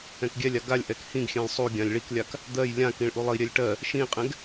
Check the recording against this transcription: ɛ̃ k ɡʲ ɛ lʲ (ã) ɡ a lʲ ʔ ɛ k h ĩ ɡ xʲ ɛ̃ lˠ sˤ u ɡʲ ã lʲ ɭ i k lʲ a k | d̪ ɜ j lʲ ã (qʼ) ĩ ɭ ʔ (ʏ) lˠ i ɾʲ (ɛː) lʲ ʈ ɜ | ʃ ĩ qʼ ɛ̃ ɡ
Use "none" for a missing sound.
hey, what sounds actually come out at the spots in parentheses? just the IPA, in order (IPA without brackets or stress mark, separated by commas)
a, k, u, ɛ